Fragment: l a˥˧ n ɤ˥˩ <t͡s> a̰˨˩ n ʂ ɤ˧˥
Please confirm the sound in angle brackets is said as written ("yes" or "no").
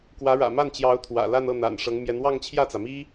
no